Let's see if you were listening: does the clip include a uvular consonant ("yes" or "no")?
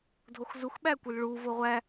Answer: yes